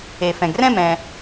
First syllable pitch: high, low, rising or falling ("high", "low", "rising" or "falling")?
low